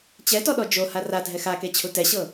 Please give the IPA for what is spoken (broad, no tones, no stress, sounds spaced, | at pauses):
t͡ɕ ɛ t ɔ ɗ ɔ d͡ʒ o h a r a dʱ ɛ x a k e t͡ɕʰ u t ɛ ɕ ɤ